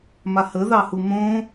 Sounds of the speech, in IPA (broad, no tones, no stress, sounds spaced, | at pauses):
m a h ə ð ɑ h u m õ